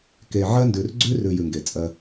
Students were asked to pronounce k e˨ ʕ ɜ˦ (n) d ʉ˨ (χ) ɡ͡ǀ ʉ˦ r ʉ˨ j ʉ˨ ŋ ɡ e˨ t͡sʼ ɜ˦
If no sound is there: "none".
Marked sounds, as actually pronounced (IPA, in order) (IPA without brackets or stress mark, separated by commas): n, r